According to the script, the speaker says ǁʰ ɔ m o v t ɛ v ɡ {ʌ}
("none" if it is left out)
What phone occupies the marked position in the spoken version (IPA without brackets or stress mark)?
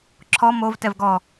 ɔ